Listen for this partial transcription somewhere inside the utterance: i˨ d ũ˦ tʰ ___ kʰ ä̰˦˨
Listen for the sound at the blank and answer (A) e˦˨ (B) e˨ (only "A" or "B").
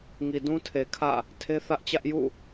B